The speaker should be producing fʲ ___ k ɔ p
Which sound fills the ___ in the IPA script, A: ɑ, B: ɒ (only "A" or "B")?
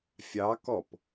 A